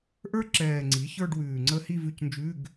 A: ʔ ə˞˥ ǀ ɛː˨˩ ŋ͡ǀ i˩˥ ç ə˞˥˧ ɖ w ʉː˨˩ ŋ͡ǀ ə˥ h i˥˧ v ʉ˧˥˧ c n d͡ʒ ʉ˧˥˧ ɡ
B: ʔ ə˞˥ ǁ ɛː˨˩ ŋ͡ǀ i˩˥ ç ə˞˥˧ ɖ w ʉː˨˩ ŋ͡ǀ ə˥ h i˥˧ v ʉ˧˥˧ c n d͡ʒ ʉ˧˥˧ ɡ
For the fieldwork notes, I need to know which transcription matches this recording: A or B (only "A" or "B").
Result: B